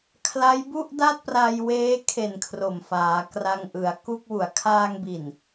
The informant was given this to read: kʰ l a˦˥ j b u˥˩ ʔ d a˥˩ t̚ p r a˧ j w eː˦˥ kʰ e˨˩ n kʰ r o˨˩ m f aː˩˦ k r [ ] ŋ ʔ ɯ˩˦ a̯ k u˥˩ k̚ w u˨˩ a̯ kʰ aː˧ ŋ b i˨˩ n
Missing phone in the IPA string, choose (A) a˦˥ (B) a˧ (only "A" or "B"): B